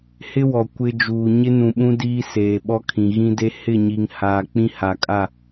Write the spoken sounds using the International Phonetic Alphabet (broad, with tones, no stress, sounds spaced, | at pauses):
h ɪ˦ w ɔ˨ kʷ ɪ˦ d͡ʒ uː˨ ɲ ɪ˦ n ũ˨ ɓ ũ˦ d iː˦ s eː˨ ɓ ɔ˦ kʰ ĩ˨ ɣ ĩ˦ d e˦ h ɪ˦˨ ɲ i˨ ŋ h aː˨ k͡p ĩ˦ h a˨ kʼ a˦˨